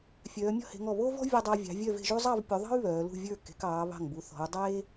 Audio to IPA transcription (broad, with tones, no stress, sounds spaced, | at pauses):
fʲ œː˩˧ mʲ ɔ̤˥˧ h e̤˩˧ ŋ ɔ˧˩ β o˥ v ɔ̤˥ vʲ u˧ dˤ a˧ vʲ ɑ̤˩˧ vʲ œ˥˧ v e̤˥˧ ʒ u˥ zˤ ɑ˥˧ v pʲ u˩˧ ðˤ ɑ̤˥ y̯ β œː˩˧ l ṳ˥˧ vʲ ə˞˥˧ k e̤˩˧ k ɑː˩˧ β ɑ̤˧˩ ŋ b u˩˧ θ ɔ̤˩˧ u̯ dˤ eː˥